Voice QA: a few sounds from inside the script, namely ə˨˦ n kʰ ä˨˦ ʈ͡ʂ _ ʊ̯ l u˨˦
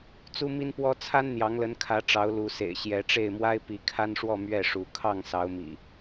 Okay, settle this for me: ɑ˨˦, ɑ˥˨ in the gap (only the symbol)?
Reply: ɑ˨˦